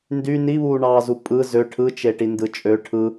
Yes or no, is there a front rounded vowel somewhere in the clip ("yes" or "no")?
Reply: yes